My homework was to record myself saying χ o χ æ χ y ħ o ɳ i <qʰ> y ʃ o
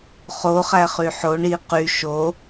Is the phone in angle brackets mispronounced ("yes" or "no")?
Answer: yes